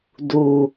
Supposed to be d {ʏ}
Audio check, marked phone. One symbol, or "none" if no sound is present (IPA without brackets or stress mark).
u